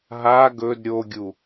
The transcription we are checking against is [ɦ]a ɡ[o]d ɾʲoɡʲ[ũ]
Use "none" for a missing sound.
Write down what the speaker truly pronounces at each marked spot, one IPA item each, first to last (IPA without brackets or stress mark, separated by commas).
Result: ɦ, ɵ, u